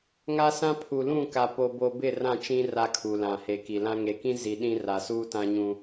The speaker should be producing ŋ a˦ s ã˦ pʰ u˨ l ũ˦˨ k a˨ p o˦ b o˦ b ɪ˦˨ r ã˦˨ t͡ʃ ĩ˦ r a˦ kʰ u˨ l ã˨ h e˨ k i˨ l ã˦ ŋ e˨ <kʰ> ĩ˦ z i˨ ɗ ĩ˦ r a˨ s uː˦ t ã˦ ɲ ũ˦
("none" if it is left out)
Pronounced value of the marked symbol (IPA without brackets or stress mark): k